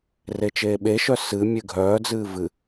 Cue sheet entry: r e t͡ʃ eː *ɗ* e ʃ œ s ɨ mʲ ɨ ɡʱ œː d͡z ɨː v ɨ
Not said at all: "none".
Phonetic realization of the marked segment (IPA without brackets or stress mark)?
ɓ